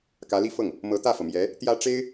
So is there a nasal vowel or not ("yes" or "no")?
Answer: no